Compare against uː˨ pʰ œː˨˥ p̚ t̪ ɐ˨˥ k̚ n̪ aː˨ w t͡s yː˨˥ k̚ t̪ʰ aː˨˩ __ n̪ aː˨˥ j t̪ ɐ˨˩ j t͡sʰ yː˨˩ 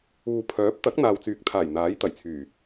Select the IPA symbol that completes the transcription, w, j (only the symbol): j